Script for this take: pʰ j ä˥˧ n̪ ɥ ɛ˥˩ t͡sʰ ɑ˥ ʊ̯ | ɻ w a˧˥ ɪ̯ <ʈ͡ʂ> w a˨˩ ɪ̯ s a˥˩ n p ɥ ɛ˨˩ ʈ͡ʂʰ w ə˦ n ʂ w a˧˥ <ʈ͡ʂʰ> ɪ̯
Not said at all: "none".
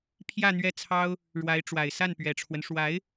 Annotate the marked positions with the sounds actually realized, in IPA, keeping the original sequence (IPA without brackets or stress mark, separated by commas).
ʈ͡ʂ, none